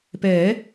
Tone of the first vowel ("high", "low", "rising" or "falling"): rising